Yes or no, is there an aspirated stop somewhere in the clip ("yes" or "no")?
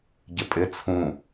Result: yes